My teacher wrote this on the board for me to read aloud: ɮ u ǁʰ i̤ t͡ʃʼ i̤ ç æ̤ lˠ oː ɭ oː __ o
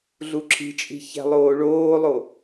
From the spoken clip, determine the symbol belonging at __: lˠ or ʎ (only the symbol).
lˠ